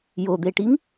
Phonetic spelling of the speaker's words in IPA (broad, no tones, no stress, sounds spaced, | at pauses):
j o d̪ e ʈ i ŋ